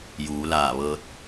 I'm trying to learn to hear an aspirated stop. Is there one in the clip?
no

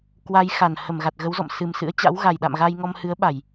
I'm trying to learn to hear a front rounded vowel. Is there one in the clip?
no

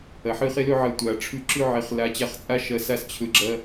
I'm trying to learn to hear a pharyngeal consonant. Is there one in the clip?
yes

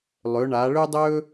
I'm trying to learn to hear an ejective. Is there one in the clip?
no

